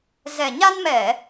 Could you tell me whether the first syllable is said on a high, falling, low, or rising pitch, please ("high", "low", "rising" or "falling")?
low